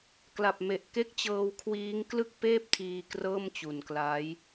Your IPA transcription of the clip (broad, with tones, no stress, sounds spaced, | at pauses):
k l a˨˩ p̚ m e˨˩ ʔ k e˦˥ k̚ t͡ɕ ɤː˧ w kʰ w iː˦˥ ŋ k l ɯ˥˩ k̚ p eː˥˩ p̚ tʰ iː˧ k r ɤː˥˩ m t͡ɕ u˨˩ n k l a˦˥ j